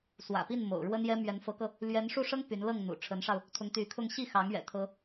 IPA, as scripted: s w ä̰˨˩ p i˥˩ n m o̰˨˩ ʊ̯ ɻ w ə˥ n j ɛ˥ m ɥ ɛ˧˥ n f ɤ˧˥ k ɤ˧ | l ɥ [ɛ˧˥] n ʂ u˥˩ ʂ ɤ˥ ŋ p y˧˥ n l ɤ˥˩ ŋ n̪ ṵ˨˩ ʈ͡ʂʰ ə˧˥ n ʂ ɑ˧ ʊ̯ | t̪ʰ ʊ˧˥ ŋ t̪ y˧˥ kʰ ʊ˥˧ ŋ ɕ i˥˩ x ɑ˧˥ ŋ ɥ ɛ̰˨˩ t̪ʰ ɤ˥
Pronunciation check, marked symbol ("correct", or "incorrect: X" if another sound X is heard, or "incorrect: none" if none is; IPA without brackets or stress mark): correct